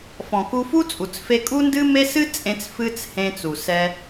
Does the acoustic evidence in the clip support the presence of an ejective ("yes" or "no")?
yes